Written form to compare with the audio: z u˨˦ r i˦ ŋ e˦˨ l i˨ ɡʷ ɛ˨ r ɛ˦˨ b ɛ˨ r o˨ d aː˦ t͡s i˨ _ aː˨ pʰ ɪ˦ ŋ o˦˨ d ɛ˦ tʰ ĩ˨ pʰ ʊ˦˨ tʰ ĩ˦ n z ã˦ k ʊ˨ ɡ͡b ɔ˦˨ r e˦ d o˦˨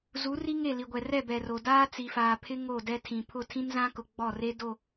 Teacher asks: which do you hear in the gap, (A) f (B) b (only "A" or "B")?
A